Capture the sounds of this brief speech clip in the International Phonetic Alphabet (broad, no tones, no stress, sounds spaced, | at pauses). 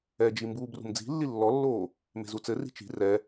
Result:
ɛ d͡ʒ i m b uː b r ṳ m d͡z i̤ lː i lː ɔ lː oː | m e̤ z u t͡s ɘ r i̤ t͡ʃ i̤ r ɛ